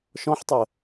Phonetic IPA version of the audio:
ʃ ɔ̃ ħ tˤ ə

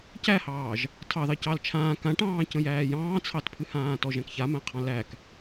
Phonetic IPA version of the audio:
c æ h ɑː ʒ | tʰ ɑ ð ɑ c ɑ l t͡ʃʰ ãː k ã ʈ ɑ̃ː c ə̃ j æː j ɑ̃ː t͡sʰ ɑ t pʰ ɨ h ãː t ɔ ʒ æ̃ k ç a m æ̃ qʰ ɑ̃ l æ k

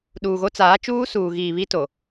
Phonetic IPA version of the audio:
ɗ uː˨ ɣ o˦ t͡s aː˨˦ t͡ʃ uː˦ s uː˨ ɣ iː˨ β i˦ t o˨

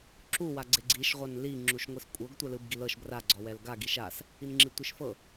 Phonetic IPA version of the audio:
ǁ u w a ɡ͡ǀ e ɡ͡ǀ i ʃ ʁʷ a n l i ŋ͡ǁ u ʃ ŋʷ i s kʷʼ ɤ ɡ tʷ ɛ l ɯ b ɡ i l ɤ ʃ b r a ɡ͡ǀ ɔ w ɛ l ɡ a ɡ i ʃ a s | i n ŋ͡ǁ i tʷ i ʃ f ɤ

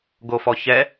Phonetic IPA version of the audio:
ɡ o f ɔ ç ɛ

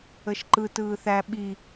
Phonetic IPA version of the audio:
ə ʃ ǃ ɯ t ɯː θ æ ɓ i

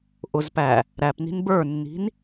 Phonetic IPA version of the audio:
ʔ ʊ z p æ | ɾ æ p n i̤ n b ə˞ nː i̤ n

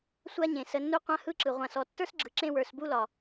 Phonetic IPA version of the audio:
sʷ a˦ ɲ ẽ˨ s ə˧ nː u˦ qʷ ã˦ h ɯ˦ ǁ ɯ˨ ʁʷ ã˨ s ɔ˨ tː ə˞˦ s ɡ͡ǁ ɯ˨ ǁ ẽ˧ w ə˞˨ s b u˦ l ɒ˨

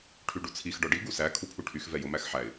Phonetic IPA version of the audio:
ʈʰ y ɖ u t͡sʰ i x ɖ ɔ ɖ i ɡ u s æ kʰ u pʰ u ʈʰ y x v ɛ j o m æ x ħ æ ɪ̯

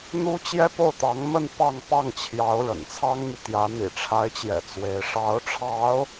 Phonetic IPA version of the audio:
n̪ u˥ t͡ɕ j ɛ˥ p o˥˩ ʊ̯ t̪ ɑ˧˥ ŋ m ə˥˧ n p ɑ˥˧ ŋ p ɑ˥˩ ŋ t͡ɕʰ j ɑ˧˥ ʊ̯ ɻ ə̰˨˩ n t͡sʰ ɑ˥ ŋ m y˨ t̪ j ä˧˥ n̪ ḭ˨˩ ʈ͡ʂʰ a˧˥ ɪ̯ t͡ɕ j ɛ̰˨˩ t͡s w e˧˥ ɪ̯ ʂ ɑ˧˥ ʊ̯ ʈ͡ʂʰ ɑ˧˥ ʊ̯

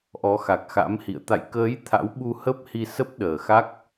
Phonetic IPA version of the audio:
ʔ ɔ˨˦ x a˨˩ k̚ x a̰˧˥ m h ḭ˧˨ ə̯ t̪ a̰˧˨ j k əː˨˦ j t̪ʰ a̰˧˥ w ɓ u˧ h ə˦˥ p̚ h i˧ s ə˦˥ p̚ ɗ əː˨˩ x a˦˥ k̚

